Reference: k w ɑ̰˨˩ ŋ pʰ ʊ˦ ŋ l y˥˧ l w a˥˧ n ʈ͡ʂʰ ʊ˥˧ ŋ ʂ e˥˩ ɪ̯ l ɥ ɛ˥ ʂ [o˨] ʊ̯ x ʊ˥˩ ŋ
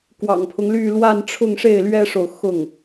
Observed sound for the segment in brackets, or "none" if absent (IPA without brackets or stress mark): o˨